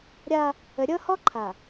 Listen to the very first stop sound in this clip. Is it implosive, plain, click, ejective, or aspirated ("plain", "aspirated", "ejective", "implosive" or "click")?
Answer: click